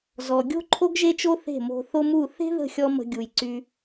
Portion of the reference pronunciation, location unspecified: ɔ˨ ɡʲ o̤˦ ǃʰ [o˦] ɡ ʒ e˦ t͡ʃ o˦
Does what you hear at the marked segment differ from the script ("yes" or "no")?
no